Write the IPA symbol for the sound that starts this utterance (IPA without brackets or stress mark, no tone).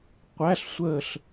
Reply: qʷ